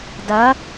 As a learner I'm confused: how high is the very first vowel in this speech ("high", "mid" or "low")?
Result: low